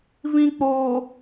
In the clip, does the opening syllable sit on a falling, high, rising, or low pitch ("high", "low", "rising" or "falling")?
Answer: low